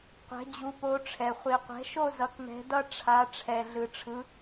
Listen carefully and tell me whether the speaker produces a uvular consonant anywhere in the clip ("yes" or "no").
yes